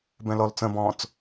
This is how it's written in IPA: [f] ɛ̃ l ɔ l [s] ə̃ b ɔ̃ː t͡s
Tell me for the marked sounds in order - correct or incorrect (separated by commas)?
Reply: incorrect, incorrect